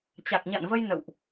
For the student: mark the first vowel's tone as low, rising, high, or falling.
low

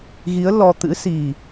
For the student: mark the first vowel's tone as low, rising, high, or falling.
rising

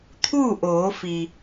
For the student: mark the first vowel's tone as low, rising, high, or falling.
falling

